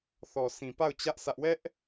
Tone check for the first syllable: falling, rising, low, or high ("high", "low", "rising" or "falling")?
low